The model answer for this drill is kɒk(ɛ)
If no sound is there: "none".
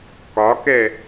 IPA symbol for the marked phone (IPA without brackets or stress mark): ɛ